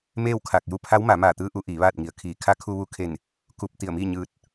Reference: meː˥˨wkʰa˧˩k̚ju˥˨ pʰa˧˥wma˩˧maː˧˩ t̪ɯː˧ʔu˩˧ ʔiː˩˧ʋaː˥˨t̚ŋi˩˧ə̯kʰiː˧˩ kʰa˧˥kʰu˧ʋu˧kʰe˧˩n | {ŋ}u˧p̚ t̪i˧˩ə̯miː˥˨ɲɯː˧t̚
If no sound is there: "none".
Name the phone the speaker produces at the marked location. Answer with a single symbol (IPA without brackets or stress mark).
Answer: k